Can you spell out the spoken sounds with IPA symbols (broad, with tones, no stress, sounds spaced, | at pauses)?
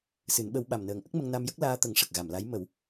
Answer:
s ɨ˨˩˦ n ɓ ə˧˥ w ɓ a˨˩ m n əː˨˩ ŋ ʔ ə˦˥ k̚ m ə˧ ŋ n a˧ m j ə˦˥ k̚ l aː˧ t̪ ə˨˩˦ ŋ ʂ ə˨˩ k̚ ɣ a˨˩˨ m l a˧˥ j m ə˨˩˦ w